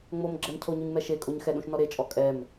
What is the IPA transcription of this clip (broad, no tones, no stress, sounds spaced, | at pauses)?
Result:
ŋ͡m o m ɡ͡ǁ ɛ m cʰ o ɲ u ɲ m ɛ ʃ e kʼ o ɲ x ɛ ɗ ũ ʃ n ɔ ɾ e t͡ʃʼ ɔ kʼ ɛ m